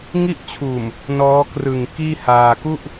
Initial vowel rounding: unrounded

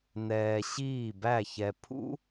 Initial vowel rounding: unrounded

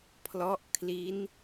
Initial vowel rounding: rounded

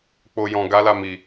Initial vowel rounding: rounded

